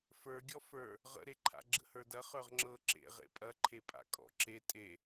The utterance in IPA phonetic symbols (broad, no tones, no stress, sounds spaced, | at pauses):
f ə˞ ɡʲ ɔ f ə˞ | ʁ ə̰ ɾ e ǃʰ a̰ ɡ͡ǁ ə̰ h ə˞ d ɐ χ ə˞ ʁ ŋ͡ǁ ɤ ǁ ḛ ʁ ḛ pʼ ɐ ǃʰ e pʼ a̰ kʼ ɔ̰ ǁ e tʼ e